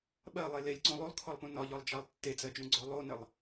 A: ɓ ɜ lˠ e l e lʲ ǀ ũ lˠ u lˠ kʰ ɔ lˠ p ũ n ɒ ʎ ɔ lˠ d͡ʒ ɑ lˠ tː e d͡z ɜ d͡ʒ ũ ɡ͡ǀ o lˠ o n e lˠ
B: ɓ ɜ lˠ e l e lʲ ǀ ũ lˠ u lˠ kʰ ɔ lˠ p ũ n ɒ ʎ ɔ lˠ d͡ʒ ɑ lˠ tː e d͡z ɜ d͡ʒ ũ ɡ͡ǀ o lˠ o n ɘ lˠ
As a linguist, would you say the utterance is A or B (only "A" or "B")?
B